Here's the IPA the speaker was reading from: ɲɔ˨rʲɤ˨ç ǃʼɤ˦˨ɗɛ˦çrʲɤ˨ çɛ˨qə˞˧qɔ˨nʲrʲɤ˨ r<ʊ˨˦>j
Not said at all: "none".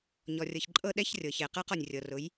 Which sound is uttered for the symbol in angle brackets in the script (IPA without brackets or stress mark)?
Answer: ʊ˨˦